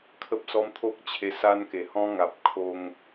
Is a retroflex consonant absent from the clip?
yes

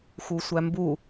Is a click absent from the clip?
yes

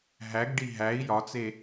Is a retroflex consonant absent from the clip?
no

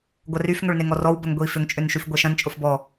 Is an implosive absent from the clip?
yes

